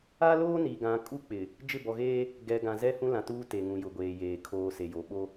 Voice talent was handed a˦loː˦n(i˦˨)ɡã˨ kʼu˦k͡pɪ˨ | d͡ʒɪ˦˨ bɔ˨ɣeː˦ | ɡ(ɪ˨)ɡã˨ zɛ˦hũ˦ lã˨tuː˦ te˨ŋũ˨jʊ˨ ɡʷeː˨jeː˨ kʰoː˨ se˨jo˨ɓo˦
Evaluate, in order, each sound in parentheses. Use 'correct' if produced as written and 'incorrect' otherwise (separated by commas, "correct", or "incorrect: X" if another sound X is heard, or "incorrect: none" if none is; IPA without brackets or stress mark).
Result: incorrect: i˨, incorrect: ɛ˨